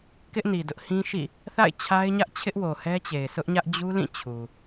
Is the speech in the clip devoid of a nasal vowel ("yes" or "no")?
no